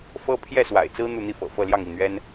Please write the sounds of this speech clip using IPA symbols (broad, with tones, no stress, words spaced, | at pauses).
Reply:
fɤ˥ pʰjɛ˥˩swa̰˨˩ɪ̯t͡sɹ̩˥ n̪u˥˧n̪i˥˩fɤ̰˨˩ fɤ˥˧ljɑ˥˧ŋi˥˩n̪ɥɛ˥n